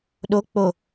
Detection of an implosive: present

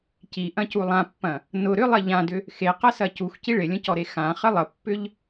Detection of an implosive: absent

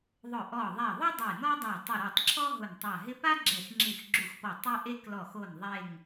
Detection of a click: present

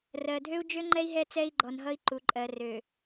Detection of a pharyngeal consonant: absent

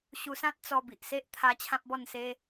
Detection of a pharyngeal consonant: absent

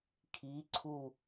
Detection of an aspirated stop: present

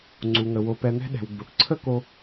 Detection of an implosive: present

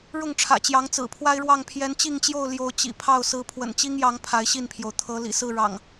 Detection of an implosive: absent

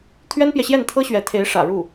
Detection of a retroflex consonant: present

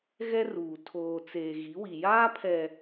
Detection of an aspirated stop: present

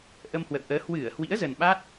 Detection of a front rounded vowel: absent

